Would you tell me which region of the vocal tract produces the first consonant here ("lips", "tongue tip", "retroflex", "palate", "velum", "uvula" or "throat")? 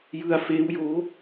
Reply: palate